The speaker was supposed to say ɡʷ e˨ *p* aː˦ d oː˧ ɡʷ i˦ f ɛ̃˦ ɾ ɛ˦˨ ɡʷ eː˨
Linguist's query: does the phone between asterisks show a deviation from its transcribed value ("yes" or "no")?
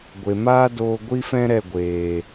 yes